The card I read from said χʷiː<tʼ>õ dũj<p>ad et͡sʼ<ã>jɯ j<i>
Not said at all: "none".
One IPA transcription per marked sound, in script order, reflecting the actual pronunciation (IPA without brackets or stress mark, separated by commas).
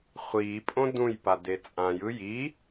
pʼ, p, ã, i